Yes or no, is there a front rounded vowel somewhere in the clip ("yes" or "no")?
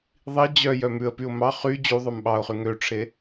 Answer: yes